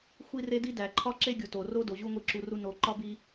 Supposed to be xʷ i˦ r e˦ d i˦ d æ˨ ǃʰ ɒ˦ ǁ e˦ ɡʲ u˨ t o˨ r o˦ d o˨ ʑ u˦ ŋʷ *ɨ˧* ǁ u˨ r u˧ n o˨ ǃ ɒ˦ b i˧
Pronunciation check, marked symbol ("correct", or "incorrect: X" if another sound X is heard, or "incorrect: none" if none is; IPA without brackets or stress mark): incorrect: i˧